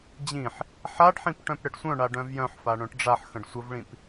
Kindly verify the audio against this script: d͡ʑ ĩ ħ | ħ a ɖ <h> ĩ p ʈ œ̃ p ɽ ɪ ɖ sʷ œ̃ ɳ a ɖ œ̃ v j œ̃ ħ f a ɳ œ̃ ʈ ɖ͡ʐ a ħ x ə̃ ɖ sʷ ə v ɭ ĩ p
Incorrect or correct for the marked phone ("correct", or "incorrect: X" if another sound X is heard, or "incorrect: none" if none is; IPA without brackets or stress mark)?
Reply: incorrect: ħ